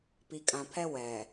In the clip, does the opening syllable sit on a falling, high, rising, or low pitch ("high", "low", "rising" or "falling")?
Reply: low